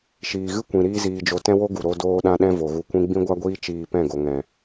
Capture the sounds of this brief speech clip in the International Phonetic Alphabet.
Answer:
ʃ iː˨ ɣ ɨ˦ kʷ ĩ˨ ɾ iː˦ z iː˧ d͡ʒ o˧ t ɛ̃˦ w o˦ ɡ u˨ ɾ o˧ d oː˧ ɗ ã˧ ɗ ɛ̃˧ v o˨ ɣ u˧ kʷ ĩ˦ ɡ͡b ĩ˦ ɡʷ a˦ ɡʷ iː˦ t͡ʃ iː˧ p ɛ̃˦˨ ɡ o˨ ŋ ɛ̃˨

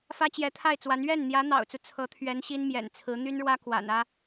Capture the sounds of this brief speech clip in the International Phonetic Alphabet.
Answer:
f ä˥ t͡ɕ j ɛ˧˥ t̪ʰ a˥˩ ɪ̯ t͡s w a˧˥ n ɥ ɛ˥˩ n n̪ j ä˧˥ n̪ ɑ̰˨˩ ʊ̯ t͡s u˦ t͡sʰ ɤ˧˥ t̪ʰ ɥ ɛ˧˥ n ɕ i˥ n m j ɛ̰˨˩ n t͡sʰ ɹ̩˧˥ n̪ y˥ n ɻ w ä˥ k w a̰˨˩ n ä˥

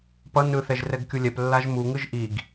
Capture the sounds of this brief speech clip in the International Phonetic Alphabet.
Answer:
p ʌ n ɯ θ ɛ ʒ r ɛ ɡ kʲ u lʲ ɛ p lː a ʒ m u ŋ ɯ ʒ ʔ i ɡ

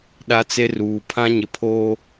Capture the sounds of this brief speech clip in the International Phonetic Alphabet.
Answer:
ɗ a˦ t͡s e˦ r uː˨ pʰ ã˦ ɲ ɪ˨ pʰ oː˦

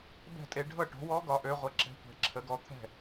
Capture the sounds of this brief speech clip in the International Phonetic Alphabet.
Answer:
b ɛ̤˥˩ tʼ e˩˥ ɖʱ ɤ˥˩ ʈ o̤˩˥ w ɔ˧˥ ɡ ɒ˩˥ ʔ ø˩˧ ʁʷ ə˩˧ ǁ ɛ̤˩˥ tʷ ɛ̤˩˧ ǁʰ ə˩˧ ɡ ɔ˩˥ t̪ʰ ɛ̤˥˩

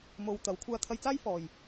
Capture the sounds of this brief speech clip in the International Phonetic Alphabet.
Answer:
m o˧ w t̪ ɐ˨˥ w kʷʰ aː˧ t̪ʰ ɐ˧ j t͡s aː˥ j f ɔː˨ j

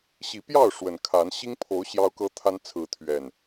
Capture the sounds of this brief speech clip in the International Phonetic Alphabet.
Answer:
ɕ i˨˦ p j ɑ˥˨ ʊ̯ ʂ w ə˨˩ n kʰ a˨˦ n ɕ i˦ ŋ pʰ o˨˦ ʊ̯ ɕ j ɑ˦ ʊ̯ k ɤ˦ t̪ʰ a˦ n t͡sʰ ɹ̩˨˦ t̪ʰ ɥ ɛ˨˩ n

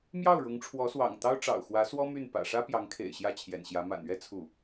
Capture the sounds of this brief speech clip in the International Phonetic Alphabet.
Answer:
m j ɑ˥˩ ʊ̯ ɻ ʊ˧˥ ŋ ʈ͡ʂʰ w ɔ˧˥ s w ɑ̰˨˩ ŋ t̪ ɑ˥ ʊ̯ ʈ͡ʂ ɑ̰˨˩ ʊ̯ x w ä˧˥ s w ɔ˥ m y˥˩ n p ä̰˨˩ ʂ ä˥ p j ɑ˧˥ ŋ kʰ ḛ˨˩ ɪ̯ ɕ j ä˥˩ t͡ɕʰ j ɛ̰˨˩ n ɕ j ä˧˥ m a̰˨˩ n ɥ ɛ˥ t͡sʰ u˥˩

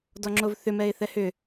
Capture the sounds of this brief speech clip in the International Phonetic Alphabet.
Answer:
d ɔ ŋ͡ǁ o v θ ʏ m ɛ ɪ̯ θ ɛ h ʏ

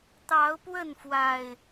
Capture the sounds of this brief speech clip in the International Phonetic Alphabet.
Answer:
t̪ ɑ˨˦ ʊ̯ p w ə˥˨ n f w a˨˩ ɪ̯

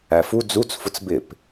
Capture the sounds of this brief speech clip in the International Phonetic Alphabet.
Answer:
æ f u d͡z u t͡s f ʊ t͡s b ɪ p

